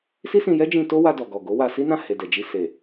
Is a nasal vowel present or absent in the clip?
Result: present